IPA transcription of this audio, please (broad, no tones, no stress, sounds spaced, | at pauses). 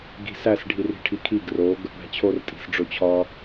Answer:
ɡ i̤ s æ s ɖʱ i r i̤ ʈʰ i kʰ i ɡ r o ɡ | ɽ æ̤ t͡ɕʰ o r tʼ i̤ s ɖ͡ʐ o t͡ɕʰ ɒ